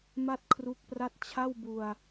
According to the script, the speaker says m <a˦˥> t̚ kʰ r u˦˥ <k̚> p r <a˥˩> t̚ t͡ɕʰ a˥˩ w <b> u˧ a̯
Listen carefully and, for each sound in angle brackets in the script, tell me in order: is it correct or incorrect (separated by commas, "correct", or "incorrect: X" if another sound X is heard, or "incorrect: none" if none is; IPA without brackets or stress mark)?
incorrect: a˥˩, correct, correct, correct